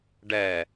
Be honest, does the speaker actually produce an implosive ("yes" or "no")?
no